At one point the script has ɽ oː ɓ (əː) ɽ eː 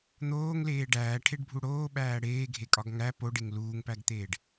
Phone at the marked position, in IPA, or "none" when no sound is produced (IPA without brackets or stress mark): æː